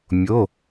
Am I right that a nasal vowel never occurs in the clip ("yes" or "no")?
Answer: yes